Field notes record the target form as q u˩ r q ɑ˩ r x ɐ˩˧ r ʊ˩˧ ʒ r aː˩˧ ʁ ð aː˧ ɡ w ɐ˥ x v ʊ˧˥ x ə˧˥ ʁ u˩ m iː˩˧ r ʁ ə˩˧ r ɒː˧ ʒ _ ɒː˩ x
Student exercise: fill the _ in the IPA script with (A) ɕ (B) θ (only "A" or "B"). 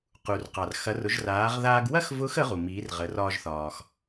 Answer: B